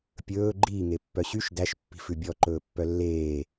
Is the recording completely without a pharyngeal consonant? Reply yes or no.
yes